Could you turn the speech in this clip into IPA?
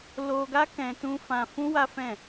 l o˧ ɡ a˦ k ɛ̃˧ t ũ˧ f ã˧ f ũ˦ w a˦ f ɛ̃˦˨

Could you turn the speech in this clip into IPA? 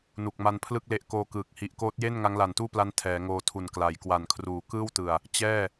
n u˨˩ k̚ m a˧ n pʰ l ɯ˥˩ k̚ l e˦˥ ʔ k oː˧ k ɯː˨˩ k̚ h i˨˩ ʔ k oː˦˥ t̚ j e˥˩ n ŋ a˦˥ ŋ l a˨˩ n t uː˥˩ p l a˦˥ n tʰ ɛː˩˦ ŋ oː˧ tʰ u˨˩ n k l a˩˦ j k w a˨˩ n kʰ r uː˨˩ k ɯː˥˩ w t ɯ˨˩ a̯ | t͡ɕ ɛː˥˩

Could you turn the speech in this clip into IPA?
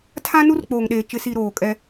tʰ ã˦ n u˦ r k͡p oː˨ ŋ ɗ eː˨ t͡ʃ ɪ˨ s i˨ ɾ oː˨ kʼ ɛ˦

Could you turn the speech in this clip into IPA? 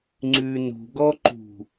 ŋ͡ǀ ʉ n ṳ ɡ ɔ ǃ ṳ

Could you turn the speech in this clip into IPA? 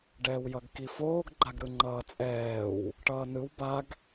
ɖ ɛː w j ʌ ɡ k i f oː ɡ ɡ͡ǃ a ɡ ɾ ɯ ŋ͡ǃ ʌː t͡sʼ ɛː w | ʈ ʌː n ɯ w b a ɡ

